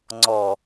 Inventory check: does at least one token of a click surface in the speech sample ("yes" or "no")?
yes